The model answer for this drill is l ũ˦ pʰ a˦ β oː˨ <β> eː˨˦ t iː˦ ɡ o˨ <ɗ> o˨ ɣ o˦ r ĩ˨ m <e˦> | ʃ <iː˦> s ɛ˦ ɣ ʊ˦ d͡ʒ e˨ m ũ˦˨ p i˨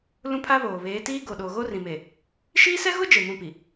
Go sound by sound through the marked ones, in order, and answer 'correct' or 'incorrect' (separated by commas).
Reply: correct, correct, incorrect, correct